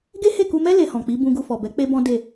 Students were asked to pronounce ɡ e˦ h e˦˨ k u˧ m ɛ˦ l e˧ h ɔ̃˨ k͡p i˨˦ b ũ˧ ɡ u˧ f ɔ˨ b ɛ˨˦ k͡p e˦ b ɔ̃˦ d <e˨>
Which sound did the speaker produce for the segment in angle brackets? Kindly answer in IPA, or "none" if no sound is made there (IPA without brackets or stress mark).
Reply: e˦˨